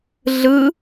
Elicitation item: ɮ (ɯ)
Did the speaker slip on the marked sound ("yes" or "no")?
no